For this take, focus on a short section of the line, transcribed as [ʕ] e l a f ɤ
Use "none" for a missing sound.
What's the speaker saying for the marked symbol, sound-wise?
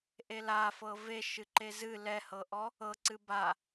ʔ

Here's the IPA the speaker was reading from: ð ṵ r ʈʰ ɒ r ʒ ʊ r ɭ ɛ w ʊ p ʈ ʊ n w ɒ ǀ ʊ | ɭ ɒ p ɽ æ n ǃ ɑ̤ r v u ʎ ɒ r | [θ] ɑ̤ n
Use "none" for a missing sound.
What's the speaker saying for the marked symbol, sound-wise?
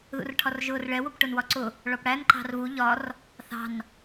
θ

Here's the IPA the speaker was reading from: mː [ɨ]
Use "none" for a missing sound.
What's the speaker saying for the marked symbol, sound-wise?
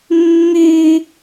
y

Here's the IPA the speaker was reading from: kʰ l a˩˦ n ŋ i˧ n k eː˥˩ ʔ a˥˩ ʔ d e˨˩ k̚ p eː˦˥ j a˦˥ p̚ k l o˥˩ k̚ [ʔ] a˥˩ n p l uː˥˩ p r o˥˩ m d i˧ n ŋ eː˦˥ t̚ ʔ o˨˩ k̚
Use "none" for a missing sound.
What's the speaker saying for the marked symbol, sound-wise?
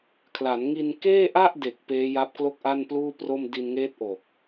ʔ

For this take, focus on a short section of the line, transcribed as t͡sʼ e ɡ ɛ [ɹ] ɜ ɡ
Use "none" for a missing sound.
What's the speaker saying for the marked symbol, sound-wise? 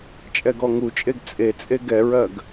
ɹ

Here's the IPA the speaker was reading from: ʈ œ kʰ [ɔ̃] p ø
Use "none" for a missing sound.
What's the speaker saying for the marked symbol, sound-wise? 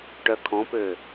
ɔ̃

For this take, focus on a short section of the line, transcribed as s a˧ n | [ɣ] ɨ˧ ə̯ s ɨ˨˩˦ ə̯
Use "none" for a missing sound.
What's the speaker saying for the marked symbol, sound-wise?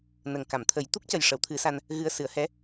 ɣ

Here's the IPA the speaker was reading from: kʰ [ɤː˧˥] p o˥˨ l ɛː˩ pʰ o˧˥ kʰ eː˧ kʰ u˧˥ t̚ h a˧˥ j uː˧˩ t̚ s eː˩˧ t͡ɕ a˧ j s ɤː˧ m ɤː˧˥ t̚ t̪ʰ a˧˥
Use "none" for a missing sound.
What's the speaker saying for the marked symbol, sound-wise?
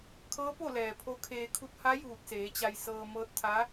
ɤː˧˥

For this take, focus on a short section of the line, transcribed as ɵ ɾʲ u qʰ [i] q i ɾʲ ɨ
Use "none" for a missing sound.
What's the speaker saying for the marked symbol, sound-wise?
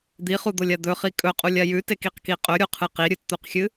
ɨ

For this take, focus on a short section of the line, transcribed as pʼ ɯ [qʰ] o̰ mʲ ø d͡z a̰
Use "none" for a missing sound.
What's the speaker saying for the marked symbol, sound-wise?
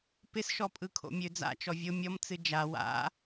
kʰ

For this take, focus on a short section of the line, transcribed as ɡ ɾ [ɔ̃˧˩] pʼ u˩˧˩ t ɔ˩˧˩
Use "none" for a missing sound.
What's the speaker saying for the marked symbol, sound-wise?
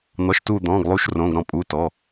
ɔ̃˧˩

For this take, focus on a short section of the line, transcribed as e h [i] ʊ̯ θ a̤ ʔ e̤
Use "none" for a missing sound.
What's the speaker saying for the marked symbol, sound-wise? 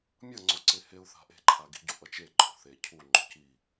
e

